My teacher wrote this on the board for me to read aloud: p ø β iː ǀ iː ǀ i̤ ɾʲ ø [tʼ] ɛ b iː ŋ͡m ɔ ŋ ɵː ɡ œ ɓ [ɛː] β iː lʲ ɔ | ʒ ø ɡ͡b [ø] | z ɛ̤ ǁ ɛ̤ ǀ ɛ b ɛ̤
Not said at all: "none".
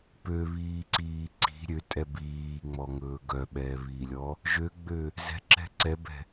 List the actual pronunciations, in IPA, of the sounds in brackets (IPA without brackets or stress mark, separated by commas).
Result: tʼ, ɛː, ø